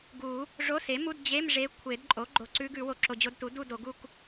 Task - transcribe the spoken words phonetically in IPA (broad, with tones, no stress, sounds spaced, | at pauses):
ɡ u˨˩˦ | ʐ o˧˥˧ s e˩˥ m u˧˥˧ d d͡ʑ e˧˥˧ m ʐ e˧˥ kʷʰ e˨˩˦ d ǃʼ o˩˥ ɡ͡ǃ o˨ ǀ ʉ˧˥ ɡ ʉ˨˩˦ w o˨ ǁ o˨ d͡ʑ o˧˥˧ d t u˩˥ d u˥˧ d o˨˩˦ ɡ u˥˧ k